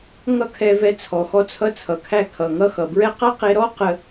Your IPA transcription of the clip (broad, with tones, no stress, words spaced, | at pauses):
ŋʌ˦ kʰɛ˧vɛ˧ t͡sʰɔ˨xɔ˧t͡sʰʌ˧ t͡sʰʌ˨kʰæ˧kʰʌ˨ ŋʌ˧xʌ˨bɹɛ˦ qʌ˦qe˧ ɾɔ˦qə˧